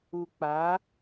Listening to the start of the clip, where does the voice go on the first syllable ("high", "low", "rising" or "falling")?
low